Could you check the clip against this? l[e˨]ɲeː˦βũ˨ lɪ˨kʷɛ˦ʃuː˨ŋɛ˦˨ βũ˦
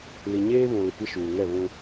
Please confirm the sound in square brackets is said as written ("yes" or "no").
no